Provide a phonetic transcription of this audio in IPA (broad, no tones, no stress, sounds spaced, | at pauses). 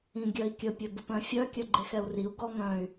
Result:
ĩ ɡʲ œ i̯ kʲ ə pʲ ø b ə p œ̃ fʲ œ kʲ œ ɡ͡ǃ e x ɛ u̯ r i u̯ ɡ ɔ ŋ œ̃ y̯